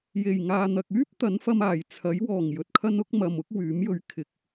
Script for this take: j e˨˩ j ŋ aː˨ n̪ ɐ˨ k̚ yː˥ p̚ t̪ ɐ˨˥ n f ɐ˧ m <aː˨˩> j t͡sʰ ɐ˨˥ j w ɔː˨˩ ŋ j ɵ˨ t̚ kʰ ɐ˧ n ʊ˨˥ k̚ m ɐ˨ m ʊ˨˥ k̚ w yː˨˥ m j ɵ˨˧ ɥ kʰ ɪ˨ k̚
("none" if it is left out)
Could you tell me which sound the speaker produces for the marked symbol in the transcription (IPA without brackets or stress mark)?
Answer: aː˨˩